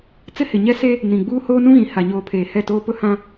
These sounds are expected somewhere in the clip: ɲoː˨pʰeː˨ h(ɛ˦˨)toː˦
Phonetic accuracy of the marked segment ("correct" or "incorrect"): correct